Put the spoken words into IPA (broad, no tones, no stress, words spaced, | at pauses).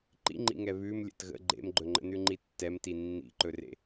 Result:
ǃḭŋ͡ǃḭŋɛ βʉm lʲə̰tɣə̰ ɡ͡ǃḛmɡ͡ǃɵŋ͡ǃə̰nʉ ŋ͡ǃitːɛmti nːḭǃɵrḛ